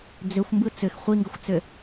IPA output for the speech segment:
d͡z ʏ xʷ m b ɯ t͡s ʏ x χʷ i ŋ ɡ ə xʷ t͡s ʏ

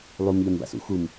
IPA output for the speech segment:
lˠ u m ʎ a m b a̰ s ṵ x u m

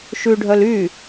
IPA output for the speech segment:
ʃ ʉ ɖʱ œ l y

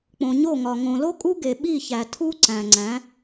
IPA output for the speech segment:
k͡p õ˨ ɲ o˦˨ ŋ ɒ˨ ŋ õ˨ l o˦ kʼ u˦ ɡ e˨ ɓ i˦˨ ç æ˨ tʰ u˦ ǀ æ̃˨ ŋ͡ǀ æ̃˨˦

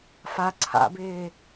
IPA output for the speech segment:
f a ǀʰ a̰ b ɪː

